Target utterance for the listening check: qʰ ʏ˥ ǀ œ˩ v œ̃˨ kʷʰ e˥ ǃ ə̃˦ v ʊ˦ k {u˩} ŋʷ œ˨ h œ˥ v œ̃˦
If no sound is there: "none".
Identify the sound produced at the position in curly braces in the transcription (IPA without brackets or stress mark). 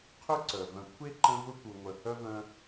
u˨